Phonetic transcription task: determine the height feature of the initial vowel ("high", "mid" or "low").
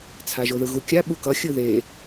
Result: low